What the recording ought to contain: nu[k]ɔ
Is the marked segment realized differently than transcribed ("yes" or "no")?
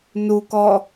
no